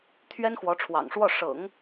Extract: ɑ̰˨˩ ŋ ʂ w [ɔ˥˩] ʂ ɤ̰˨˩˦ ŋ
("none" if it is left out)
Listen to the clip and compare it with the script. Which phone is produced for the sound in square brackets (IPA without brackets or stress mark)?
ɔ˥˩